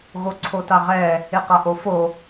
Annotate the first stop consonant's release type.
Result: click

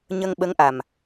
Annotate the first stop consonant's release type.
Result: implosive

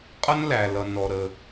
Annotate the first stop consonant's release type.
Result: ejective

